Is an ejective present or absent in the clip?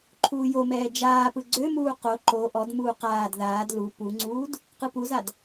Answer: absent